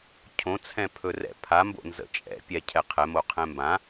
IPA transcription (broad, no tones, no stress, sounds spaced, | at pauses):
cʰ õ t͡sʰ ɛ̃ pʰ ɵ r ɛ̰ pʰ a m b o̰ n z ə̰ t͡ʃʼ ɛ̰ pʲ ɛ cʰ ɛ qʰ ɛ m o qʰ ɛ̃ m b ã